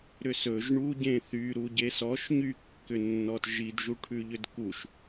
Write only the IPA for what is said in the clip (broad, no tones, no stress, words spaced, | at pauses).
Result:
ɾʏsɵʒ ɳu ɟẽθy ɾuɟesɔʃ ɲykːʏnːɔt ʒidʒuʈʰʉʎʏd kuʃ